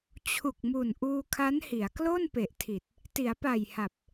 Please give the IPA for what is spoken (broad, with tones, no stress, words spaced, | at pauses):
t͡ɕʰu˨˩k̚mu˨˩n ʔuː˧kʰa˦˥nhi˩˦a̯ klo˥˩npe˨˩ʔtʰi˨˩t̚ | ti˩˦a̯pa˨˩jha˨˩p̚